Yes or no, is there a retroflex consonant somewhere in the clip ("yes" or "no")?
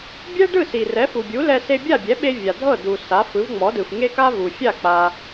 yes